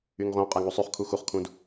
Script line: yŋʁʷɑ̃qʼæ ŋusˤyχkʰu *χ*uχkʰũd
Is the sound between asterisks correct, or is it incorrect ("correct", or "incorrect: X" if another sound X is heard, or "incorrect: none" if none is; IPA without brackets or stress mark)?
incorrect: x